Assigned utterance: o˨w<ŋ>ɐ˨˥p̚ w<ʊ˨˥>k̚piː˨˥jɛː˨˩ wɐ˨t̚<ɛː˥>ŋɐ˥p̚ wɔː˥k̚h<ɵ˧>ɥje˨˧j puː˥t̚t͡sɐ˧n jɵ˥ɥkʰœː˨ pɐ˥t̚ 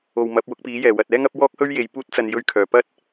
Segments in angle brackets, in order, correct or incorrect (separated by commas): incorrect, correct, correct, incorrect